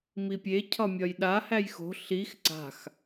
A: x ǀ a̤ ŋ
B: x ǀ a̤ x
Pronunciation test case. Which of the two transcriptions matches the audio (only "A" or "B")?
B